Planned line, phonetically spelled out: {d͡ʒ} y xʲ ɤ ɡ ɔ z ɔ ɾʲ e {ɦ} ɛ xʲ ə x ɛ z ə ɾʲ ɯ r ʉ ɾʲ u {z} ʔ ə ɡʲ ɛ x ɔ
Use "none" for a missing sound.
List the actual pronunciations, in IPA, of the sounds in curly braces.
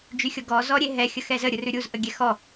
d͡ʒ, ɦ, z

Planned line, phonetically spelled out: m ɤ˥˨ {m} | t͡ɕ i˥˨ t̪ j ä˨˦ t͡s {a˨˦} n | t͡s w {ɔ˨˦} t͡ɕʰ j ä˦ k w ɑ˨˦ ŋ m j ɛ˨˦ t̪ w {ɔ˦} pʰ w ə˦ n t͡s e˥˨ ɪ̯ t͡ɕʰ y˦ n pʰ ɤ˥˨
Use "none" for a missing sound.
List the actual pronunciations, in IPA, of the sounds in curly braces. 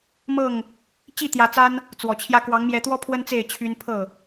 ŋ, a˦, ɔ˨˩, ɔ˦

